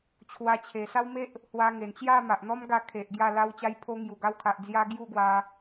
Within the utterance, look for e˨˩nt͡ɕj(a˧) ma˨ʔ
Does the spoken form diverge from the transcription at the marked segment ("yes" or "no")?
yes